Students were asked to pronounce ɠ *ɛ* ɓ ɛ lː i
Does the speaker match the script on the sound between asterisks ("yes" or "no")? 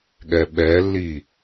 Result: yes